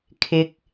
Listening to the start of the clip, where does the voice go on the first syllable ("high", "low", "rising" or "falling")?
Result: low